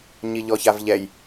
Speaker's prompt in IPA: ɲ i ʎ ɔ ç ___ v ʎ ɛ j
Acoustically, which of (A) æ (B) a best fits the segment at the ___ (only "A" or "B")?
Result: B